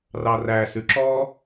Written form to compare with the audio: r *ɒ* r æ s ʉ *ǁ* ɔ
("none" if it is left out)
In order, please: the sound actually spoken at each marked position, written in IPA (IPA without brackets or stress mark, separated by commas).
ɑ, ǁ